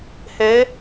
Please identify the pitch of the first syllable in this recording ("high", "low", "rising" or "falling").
rising